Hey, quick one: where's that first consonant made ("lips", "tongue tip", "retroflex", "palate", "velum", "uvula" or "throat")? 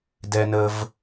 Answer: tongue tip